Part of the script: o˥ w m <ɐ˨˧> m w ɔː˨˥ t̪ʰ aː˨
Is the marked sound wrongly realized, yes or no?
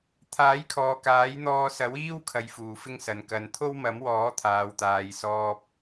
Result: yes